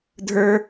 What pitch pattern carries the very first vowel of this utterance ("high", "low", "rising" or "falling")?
high